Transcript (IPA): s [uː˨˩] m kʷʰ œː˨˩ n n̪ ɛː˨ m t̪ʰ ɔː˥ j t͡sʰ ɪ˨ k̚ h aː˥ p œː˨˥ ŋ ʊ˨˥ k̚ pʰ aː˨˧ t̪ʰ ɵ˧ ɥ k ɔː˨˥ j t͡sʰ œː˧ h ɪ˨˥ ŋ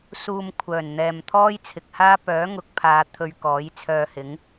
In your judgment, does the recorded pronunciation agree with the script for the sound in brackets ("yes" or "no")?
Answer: no